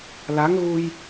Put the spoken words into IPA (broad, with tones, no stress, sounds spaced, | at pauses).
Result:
l a˧˥ ŋ ɣ u˧ j